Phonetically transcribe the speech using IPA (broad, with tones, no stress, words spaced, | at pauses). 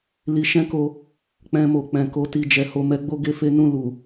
li˧ʃɛ̃˦ko˧ | k͡pɛ̃˧mo˨k͡pɛ̃˨ko˧ ti˧d͡ʒɛ˧ho˧ mɛ˦ɡ͡bo˦ɡe˦ fe˦nũ˦˨ lu˨